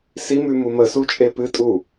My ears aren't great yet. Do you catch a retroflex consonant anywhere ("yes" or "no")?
no